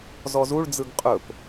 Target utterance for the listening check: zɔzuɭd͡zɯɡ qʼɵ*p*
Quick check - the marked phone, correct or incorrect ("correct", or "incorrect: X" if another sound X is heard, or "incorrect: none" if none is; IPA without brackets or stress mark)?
correct